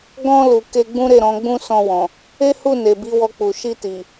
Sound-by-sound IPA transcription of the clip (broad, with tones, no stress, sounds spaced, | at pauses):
ɡ ɔ̃˧ l u˨ k e˧ ɡ͡b ũ˦ ɾ e˦˨ ɾ ɔ̃˨˦ ɡ͡b ũ˦ s ɔ̃˧ w ɔ̃˨ | e˦ h u˦˨ n e˨ b i˨˦ w ɔ˧ k͡p u˨ ʃ i˧ t i˨